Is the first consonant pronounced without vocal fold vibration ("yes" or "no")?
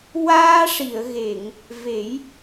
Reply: no